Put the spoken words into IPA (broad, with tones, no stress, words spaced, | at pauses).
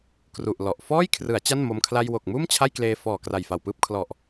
kru˨˩ʔlɔ˨˩ʔ fɔː˥˩j kʰrɯ˩˦a̯ t͡ɕa˥˩nmo˧m kʰla˧jwo˨˩k̚muː˥˩m t͡ɕʰa˥˩jkleː˧ fɔː˨˩ kra˨˩jfa˨˩wpɯː˥˩p̚ kʰlɔ˨˩ʔ